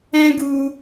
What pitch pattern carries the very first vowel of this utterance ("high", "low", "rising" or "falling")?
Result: high